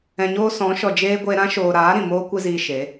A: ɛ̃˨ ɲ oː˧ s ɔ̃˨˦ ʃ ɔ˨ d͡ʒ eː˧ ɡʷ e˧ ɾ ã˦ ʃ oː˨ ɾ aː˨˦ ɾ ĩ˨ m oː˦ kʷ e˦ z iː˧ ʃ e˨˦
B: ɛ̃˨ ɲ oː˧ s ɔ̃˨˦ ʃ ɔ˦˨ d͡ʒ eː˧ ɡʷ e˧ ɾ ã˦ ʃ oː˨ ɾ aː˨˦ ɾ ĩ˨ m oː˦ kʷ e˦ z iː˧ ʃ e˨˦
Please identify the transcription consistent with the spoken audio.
A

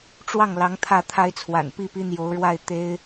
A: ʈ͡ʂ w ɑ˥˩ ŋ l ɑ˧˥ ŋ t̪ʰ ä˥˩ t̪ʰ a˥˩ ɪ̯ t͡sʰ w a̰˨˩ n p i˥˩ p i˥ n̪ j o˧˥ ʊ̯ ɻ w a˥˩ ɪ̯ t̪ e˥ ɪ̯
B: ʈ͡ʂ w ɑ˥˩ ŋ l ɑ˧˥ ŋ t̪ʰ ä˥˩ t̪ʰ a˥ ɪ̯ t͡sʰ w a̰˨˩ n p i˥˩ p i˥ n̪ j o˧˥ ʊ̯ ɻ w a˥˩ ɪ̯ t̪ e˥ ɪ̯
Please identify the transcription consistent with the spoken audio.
B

